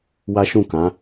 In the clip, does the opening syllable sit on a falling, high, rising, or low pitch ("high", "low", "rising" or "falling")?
high